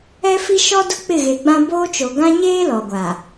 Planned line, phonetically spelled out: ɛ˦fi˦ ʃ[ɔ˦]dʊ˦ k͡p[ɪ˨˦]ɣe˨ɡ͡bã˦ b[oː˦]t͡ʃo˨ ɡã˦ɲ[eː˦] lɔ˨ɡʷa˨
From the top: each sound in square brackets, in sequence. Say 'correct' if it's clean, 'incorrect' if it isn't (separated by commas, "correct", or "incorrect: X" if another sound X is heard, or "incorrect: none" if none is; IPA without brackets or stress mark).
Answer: correct, incorrect: ɪ˦˨, correct, correct